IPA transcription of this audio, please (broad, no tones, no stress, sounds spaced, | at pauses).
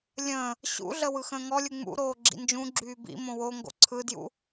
lʲ ə̃ː | ɕ ṵ ɮ ə w ɯ x ə̃ː ŋ ɔ lʲ ɯ ŋ͡m ṵ ɾ oː ɡ͡ǁ ḭ n d͡ʒ ũ ɡ͡ǁ yː b ḭ m õ w o ŋ ɡ o̰ ǀʰ ɯ d j ṵ